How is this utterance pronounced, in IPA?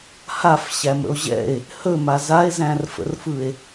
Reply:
h a f ɕ æ m ə̰ o̯ ʑ ɛ̰ e̯ | h ɵ m a z a e̯ z æ̃ r f ə̰ r f ɯ e̯

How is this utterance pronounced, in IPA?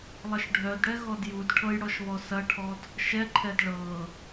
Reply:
lˠ ɐ ʃ ɖʱ œ d ɽ ɛ ɣ ɔ d j u d ʈʰ ɤ j ɽ ɔ ʃ β ɔ s ɐ ʈʰ ɔ d | ʃ ɛ ǃʰ ɛ d ɭ ɤ

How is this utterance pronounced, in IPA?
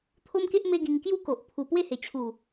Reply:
t̪ʰ o˦ m k e˦ ʔ m e˦ ɡ ĩ˧ ŋ k j u˥˧ k o˨ ʔ pʰ u˨˩ p w e˥˧ h e˨˩ t͡ɕʰ u˨˩

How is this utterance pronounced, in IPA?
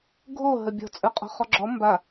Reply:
ɡʱ o ɦ ə bʲ ɔ̤ t͡sʼ ə˞ qʼ ɔ̤ χ ɔ ɡ͡ǁ ɔ m b a

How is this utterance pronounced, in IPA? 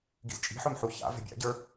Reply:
ɡ ḭ z t͡ʃʼ i̤ ħ ɵ m ħ u ç a̰ v ɛ̤ bʲ a̰ ɟ ə˞

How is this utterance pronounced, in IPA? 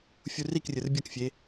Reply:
fʲ u r i k rʲ ɯ r bʲ ʌ k fʲ e

